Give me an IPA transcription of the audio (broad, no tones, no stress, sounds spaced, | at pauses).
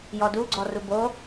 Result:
j ɔ d u ɡ͡ǀ ɔ r u b o